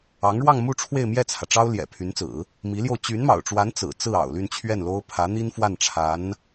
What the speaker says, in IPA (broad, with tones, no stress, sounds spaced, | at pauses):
ɑ˧˥ ŋ ɻ w ɑ˥˧ ŋ m u˥˧ ʈ͡ʂʰ w e˥˧ ɪ̯ m j ɛ˥˩ t͡sʰ ä˩ ʈ͡ʂ ɑ˥ ʊ̯ l j ɛ̰˨˩ pʰ y˧˥ n t͡s ɹ̩˨˩˦ | m i˧˥ l j o˧ ʊ̯ t͡ɕ y˧˥ n m ɑ̰˨˩ ʊ̯ ʈ͡ʂ w a˧˥ n t͡s ɹ̩˨˩ t͡s ɹ̩˥˩ ɑ̰˨˩ ʊ̯ l y˥˧ n t͡ɕʰ ɥ ɛ˥˩ n l o˥ ʊ̯ pʰ ä˧˥ n̪ i˥ n f w a˥˩ n ʈ͡ʂʰ a˧˥ n